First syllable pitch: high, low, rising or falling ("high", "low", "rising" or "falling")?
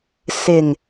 low